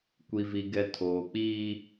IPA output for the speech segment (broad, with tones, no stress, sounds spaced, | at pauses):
kʷ i˨ v i˨ ɡ ɛ˨ tʰ oː˨ k͡p iː˦